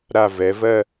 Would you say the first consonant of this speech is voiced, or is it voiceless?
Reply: voiced